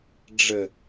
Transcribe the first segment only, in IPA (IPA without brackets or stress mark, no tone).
ɖ͡ʐ